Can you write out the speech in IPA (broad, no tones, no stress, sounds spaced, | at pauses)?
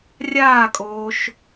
rʲ aː kʼ oː ʃ